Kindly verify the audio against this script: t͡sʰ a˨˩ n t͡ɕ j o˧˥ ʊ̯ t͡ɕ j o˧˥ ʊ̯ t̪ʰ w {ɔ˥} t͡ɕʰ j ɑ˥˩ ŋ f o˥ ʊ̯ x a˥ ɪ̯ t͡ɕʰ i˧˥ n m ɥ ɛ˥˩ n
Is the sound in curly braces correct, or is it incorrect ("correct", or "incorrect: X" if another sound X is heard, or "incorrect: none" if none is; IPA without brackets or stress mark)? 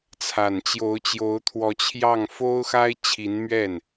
incorrect: ɔ˧˥